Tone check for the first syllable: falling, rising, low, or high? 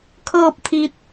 falling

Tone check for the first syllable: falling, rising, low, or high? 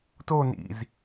falling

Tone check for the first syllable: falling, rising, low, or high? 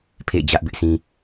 falling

